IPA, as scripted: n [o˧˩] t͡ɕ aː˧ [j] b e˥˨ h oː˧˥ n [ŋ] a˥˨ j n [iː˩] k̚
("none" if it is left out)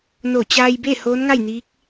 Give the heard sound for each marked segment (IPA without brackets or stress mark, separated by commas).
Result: o˧˩, j, ŋ, iː˧˥